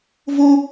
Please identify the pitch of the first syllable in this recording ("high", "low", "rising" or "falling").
high